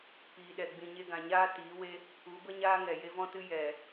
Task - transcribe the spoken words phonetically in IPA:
piː˨ɗɛ˨ ɡ͡bĩ˨ɲe˧ɡã˨ɲaː˦ tiː˨˦we˦ | u˨˦bə˦ɲaː˦ ŋɛ˨je˦vɔ̃˦tɨ˦ jɛ˨

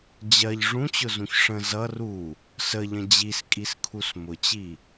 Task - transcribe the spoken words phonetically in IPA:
d͡ʑɜʎ ʐũt͡ɕʊzũç ʂə̃ zʌ ru | səʎə̃ d͡ʑiskʼiskʰus mʊt͡ɕi

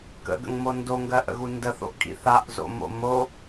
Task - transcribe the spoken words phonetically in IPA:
kə̰ɡə̰ŋmo ndoŋɡɜʔə̰ɣu ndəθo̰ʔkʼḭ θaʔzo̰mo̰ mo

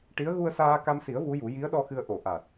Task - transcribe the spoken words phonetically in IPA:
ʈi˧˥ə̯ ɣu˧ə̯saː˧ka˧msi˨˩˦ə̯ vu˧˥ju˨˩˦ ji˧˥ə̯ɗɔ˧ xɨ˧ə̯ ʔo˨˩˨ ʔa˨˩t̚

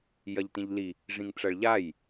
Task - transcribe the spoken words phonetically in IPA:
jɐʎtĩʎli | ʐĩŋʈ͡ʂɐɭʎaj

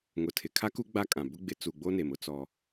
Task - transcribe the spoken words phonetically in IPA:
ŋʊ˨tʰɪ˨kʰa˦ku˦ ɡ͡ba˦kʼã˨ bʊ˦ɡ͡bɪ˨˦ t͡su˨ɡ͡bo˦ne˨m ʊ˦t͡sɔ˦

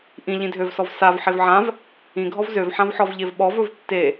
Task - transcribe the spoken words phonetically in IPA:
ʔĩ ʎĩdʱøvsɔv sav ħevʕãv | ĩɡʱɔv zøvħãvħɔvʎev ɓɔv ɵvtːe

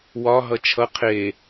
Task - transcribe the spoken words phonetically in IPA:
wɒ ɦʌt͡ʃʰʌ qʰe

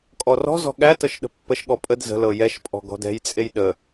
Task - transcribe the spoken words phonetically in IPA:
kʼɔrɔ̤zɔ̤ ɠæ tɤʃɗə̤pːəʃɠɔ pʼəd zə̤lɤ jɛʃpʼɔ̤ ɡɔ̤dɛ̤jt͡sʼej ɗə

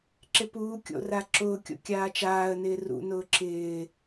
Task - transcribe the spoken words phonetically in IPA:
ǁɪpuːkʲo̰ raǁʊːkʲo̰ kʲaːt͡ʃaːə̯nɪː rṵnʊː ǁɪː

